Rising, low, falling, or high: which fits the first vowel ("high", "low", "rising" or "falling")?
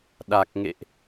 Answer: low